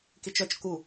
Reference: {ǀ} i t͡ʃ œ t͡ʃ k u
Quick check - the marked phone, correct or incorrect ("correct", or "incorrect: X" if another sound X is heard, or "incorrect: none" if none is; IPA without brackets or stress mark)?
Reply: incorrect: k